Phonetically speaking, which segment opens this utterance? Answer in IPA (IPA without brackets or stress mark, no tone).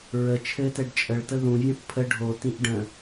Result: ɹ